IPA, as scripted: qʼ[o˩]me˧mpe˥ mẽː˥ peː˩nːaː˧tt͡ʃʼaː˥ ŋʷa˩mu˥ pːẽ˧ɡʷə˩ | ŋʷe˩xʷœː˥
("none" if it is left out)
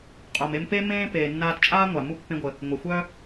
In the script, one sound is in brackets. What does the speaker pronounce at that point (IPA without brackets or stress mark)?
o˩